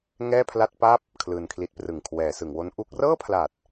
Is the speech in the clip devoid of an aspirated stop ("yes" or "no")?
no